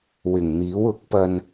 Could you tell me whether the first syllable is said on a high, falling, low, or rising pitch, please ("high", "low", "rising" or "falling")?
low